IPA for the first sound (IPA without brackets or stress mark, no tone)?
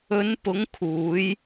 ɵ